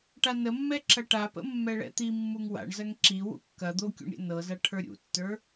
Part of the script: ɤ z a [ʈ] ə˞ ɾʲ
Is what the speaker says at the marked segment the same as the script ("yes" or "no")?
no